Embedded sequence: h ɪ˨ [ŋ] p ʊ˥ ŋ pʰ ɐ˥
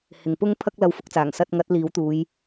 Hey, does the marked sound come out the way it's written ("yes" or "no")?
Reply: yes